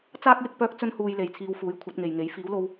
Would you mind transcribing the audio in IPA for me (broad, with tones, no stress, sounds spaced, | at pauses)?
t͡s aː˥ k̚ j ɪ˧ k̚ p œː˥ k̚ t͡s ɵ˥ n h uː˧ j l e˨ j t͡sʰ iː˧ w f uː˨˥ j kʷʰ ɐ˨˥ t̚ ŋ e˨ j ŋ e˨˥ j f iː˨˥ w l o˧ w